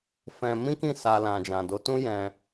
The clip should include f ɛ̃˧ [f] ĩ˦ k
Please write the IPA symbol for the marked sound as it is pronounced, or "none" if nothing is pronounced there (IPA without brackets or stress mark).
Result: m